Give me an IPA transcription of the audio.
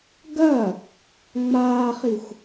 ɡ ɐ | ŋ͡m aː χ i xʷ

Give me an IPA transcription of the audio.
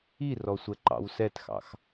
i r ɔ sʷ ɛ ǃ ɑ̰ w s ɛ t x ɑ̰ x

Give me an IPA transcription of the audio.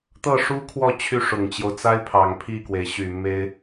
t̪ ɤ˥˩ ʂ u˥ kʰ w ɔ˥˧ t͡ɕʰ y˥˩ ʂ ʊ˨˩ ŋ t͡ɕ j o˦ ʊ̯ t͡s a˥ ɪ̯ pʰ ɑ˨˩ ŋ pʰ i˥˩ k w e˩ ɪ̯ ɕ y˨˩ m e˥ ɪ̯

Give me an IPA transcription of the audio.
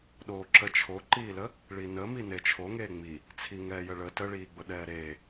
ɗ oː ǁ ə t͡ʃʰ o ǃ iː l ə | ɭ i n ə m i n e t͡ʃʰ o ŋ eː ŋ͡m i | t͡sʰ i ŋ ɛː j ə ɭ ə t ə ɭ iː ɡ͡b ʊ ɗ ɛː ɾ eː

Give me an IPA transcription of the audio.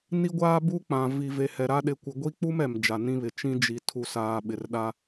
n i˦ ɡʷ aː˦ b u˦ k͡p ã˨ v i˨ v e˨ h ɛ˨ ɾ a˦ ɗ ɪ˦ kʷ ɪ˦ ɡʷ i˦ k͡p u˦ m ɛ˨ m d͡ʒ a˨ n ĩ˦ β ɪ˨ t͡ʃ ĩ˦ d͡ʒ i˨ tʰ u˨ s aː˨ ɓ ɪ˨ r ɗ a˦

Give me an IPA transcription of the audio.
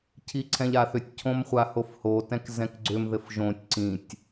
cʰ i ǀʰ ɛ̃ ʎ a θ ʏ tʲ cʰ õ m χʷ a h o f h o t ɛ̃ k z ɛ̃ k ɡ͡ǀ ʏ m ð ɘ f ʒ õ tʲ ǀ ĩ tʲ

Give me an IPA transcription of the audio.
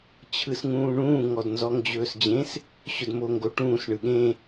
t͡ɕʰ ɯ s ŋ ũː ɳ ũː ŋ ɔ d n z ɔ ŋ d͡ʑ ɵː s d͡ʑ ẽ s | ɕ ɵ d m o ŋ ɡ o ʈ ũː s ɳ ɯ ɠ ẽ

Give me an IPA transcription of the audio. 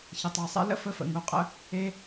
ç ə˩ tˤ a˩ sˤ ɛ̰˧ l ə̰˥ f ə˧ f ə̰˩ ŋ u˩ qʼ ə̰˧ | e˥

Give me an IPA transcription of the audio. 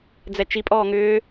d͡z ɛ t͡ʃ i pʼ ɔː ŋ ʏː

